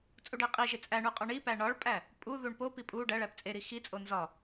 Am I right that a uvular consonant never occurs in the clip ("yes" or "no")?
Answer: no